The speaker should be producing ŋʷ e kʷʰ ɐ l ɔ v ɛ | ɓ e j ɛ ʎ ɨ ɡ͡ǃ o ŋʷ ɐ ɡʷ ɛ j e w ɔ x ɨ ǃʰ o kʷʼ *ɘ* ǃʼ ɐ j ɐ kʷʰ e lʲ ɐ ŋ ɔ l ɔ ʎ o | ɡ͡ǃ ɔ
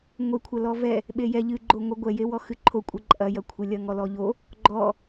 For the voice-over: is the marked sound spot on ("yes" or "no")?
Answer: no